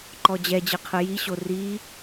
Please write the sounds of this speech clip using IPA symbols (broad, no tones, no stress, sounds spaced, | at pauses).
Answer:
ǃ ɔ d͡ʑ ɛ d͡ʑ ɯ qʰ ɯ j i ɕ o r i